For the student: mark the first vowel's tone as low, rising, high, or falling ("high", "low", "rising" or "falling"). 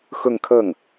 falling